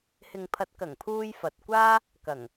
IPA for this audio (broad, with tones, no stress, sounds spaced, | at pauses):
h ɪ˨ ŋ pʰ ɐ˨˥ t̚ k ɐ˨˩ ŋ pʰ uː˧ j f ɐ˨ t̚ kʷ aː˥ | k ɐ˨˩ ŋ